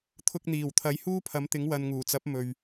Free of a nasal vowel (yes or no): yes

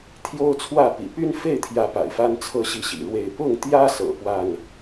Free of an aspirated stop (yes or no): no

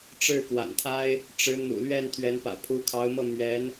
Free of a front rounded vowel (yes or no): yes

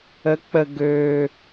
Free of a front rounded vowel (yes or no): no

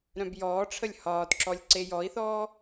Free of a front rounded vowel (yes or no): no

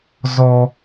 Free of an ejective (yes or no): yes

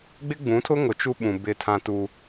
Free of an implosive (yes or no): no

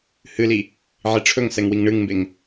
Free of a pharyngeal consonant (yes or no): no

